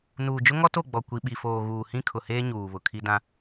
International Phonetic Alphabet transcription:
n uː˨ d͡ʒ ʊ˦ ŋ ɔ˦ t o˦˨ ɡ͡b ɔ˨ kʷ i˨ ɓ i˨ f oː˨ ɣ uː˨ h ĩ˦ kʰ ʊ˨ h eː˦ ɲ uː˨ β ʊ˨ kʰ i˦ d ã˦

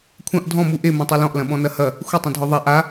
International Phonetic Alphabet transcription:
kʷʰ ɐ̃ ʔ dʱ ɔ̃ m u ʔ e m ɐ̃ tˤ e l ɔ̃ ʔ l ɐ̃ ɓ ɔ̃ n ɐ h ɐ | xʷ ə tˤ ɐ̃ dʱ ɔ ðˤ a ʔ a

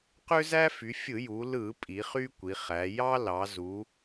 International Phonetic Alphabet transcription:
q ø˦ z æ˦ f y˩˧ fʲ ɯ˧˩˧ j u˩˧ l ɯ˧˩˧ pʼ i˩˧ χ y˦ kʷ i˩˧ χ æ˩˧ j ɑ˦ l ɑ˩˧ z u˩˧

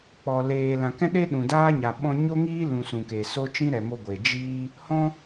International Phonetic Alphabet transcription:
k͡p ɔ˨ l eː˨ l ã˨ k ɛ̃˦ ɗ e˦ ɗ ũ˨ d aː˦ ɲ a˨ ɓ ɔ̃˧ ɲ o˦ ŋ iː˦ l ũ˨ s ũ˨ k e˨ s o˦ t͡ʃ ĩ˦ ɾ ɛ˨ m o˧ ɡʷ e˨ d͡ʒ iː˦ | h ɔ̃˧

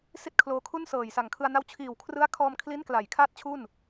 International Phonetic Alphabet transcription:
s i˥˩ t̚ kʰ l oː˧ kʰ u˥˩ n s ɤː˨˩ j s a˨˩ ŋ kʰ ɯ˧ a̯ n a˧ w t͡ɕʰ iː˨˩ w kʰ r ɯ˦˥ a̯ kʰ ɔː˧ m kʰ l i˦˥ n k l a˩˦ j kʰ aː˥˩ t̚ t͡ɕʰ u˥˩ n

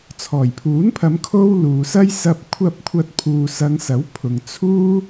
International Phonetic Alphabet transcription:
t͡sʰ ɔː˨˩ j pʰ uː˨˥ n pʰ ɐ˨˧ m kʰ o˥ w l uː˨ s ɐ˥ j s ɐ˧ p̚ kʷʰ ɐ˧ p̚ kʷʰ ɐ˧ t̚ pʰ uː˨ s ɐ˨˧ ŋ s ɐ˨˥ w pʰ ʊ˨ ŋ t͡sʰ uː˥

